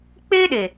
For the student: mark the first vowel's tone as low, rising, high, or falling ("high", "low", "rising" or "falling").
high